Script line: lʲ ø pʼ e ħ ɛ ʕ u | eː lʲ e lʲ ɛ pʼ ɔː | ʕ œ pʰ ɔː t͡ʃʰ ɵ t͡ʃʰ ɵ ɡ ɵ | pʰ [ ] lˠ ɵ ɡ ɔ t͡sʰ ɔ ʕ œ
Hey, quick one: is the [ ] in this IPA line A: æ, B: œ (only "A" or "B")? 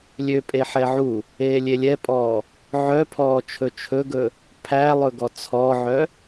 A